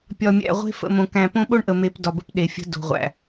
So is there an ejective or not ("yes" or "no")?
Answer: no